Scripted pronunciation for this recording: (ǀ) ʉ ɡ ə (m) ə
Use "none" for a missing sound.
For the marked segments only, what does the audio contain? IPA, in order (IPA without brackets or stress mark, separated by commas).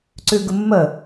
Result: ǀ, mː